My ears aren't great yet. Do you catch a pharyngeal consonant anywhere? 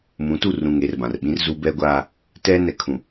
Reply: no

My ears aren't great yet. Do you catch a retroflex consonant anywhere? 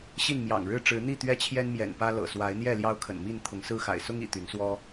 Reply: yes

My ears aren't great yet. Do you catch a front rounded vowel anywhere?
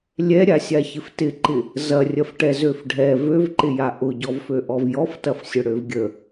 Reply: yes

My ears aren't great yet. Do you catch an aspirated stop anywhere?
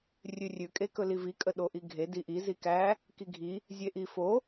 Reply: no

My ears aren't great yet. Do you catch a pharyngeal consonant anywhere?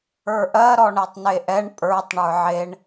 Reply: yes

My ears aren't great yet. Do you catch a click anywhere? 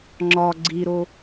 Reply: yes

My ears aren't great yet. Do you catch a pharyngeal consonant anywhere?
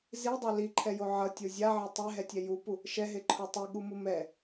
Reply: yes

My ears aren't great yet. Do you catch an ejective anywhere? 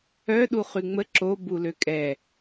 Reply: yes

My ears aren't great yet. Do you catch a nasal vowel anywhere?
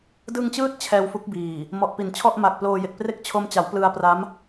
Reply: no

